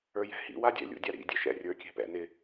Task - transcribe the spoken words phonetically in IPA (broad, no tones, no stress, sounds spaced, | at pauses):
ə˞ j ɛ̤ h ḭ w a dʲ ɛ̰ lʲ ṵ dʲ a ɾ ḭ dʲ ɛ ʃ ɛ̰ rʲ ə˞ kʲ ɛ̤ p ɛ̰ n ɪ